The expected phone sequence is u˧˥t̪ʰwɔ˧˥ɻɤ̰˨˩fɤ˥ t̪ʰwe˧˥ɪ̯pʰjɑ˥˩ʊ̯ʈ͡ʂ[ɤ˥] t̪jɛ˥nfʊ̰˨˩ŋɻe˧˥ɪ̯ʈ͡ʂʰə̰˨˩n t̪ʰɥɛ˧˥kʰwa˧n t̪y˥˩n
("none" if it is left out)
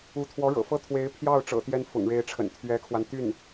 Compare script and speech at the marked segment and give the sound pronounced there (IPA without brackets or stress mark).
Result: ɤ̰˨˩